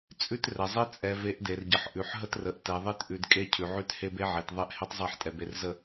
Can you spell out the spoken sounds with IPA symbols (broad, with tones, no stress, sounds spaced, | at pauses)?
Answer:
t͡sʼ ʉ˦ t r ɛ˨ zˤ e˦ t͡sʼ ɛ˨ v e˨˦ ʔ d e˨ r ɟ ə˨ ħ ʔ ʉ˨ ħ ɦ ə˦ t r ə˨ ʔ t ɛ˨ ðˤ e˦ t ʔ ʉ˨ d kʼ e˦ cʰ ʉ˨ ʕ ʉ˦ t h e˦ b e˦ ʕ e˨ t ðˤ ɛ˦ ʔ h e˦ tˤ zˤ e˦˨ ħ tʼ ɛ˨ b e˨ r z ə˨